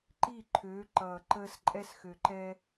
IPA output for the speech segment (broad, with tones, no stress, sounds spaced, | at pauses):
ǃ i˥˩ ǃʰ øː˨˥ ǃ ʌː˨˩ ǃ əː˧ s ǃʼ ɛ˧ s x ø˨˩ ǃ ɛ˧